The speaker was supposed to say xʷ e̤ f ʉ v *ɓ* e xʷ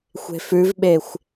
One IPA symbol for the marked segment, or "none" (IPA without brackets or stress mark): ɓ